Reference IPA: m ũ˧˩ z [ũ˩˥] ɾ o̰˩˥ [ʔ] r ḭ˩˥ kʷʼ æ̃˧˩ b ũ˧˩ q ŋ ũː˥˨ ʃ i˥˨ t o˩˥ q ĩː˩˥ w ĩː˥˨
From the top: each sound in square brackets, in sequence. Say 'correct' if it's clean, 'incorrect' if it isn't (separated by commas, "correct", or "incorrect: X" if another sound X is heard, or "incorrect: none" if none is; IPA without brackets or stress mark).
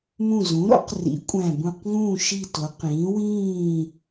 correct, incorrect: q